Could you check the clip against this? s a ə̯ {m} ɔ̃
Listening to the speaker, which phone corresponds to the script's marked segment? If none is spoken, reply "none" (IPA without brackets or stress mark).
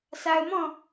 m